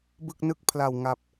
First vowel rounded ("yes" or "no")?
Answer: no